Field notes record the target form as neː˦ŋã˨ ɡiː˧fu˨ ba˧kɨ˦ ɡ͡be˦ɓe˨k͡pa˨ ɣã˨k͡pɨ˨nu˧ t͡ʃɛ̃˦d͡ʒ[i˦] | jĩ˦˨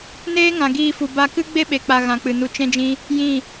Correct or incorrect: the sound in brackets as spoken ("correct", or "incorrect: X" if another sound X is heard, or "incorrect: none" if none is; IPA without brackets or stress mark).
incorrect: ĩ˦